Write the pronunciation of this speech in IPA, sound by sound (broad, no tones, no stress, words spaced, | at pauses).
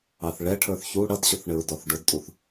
ɑθɭɛ ʈʰə˞θçu ɽʌdɕʊθ ɳɪɹdɔθɖʊdtʼuθ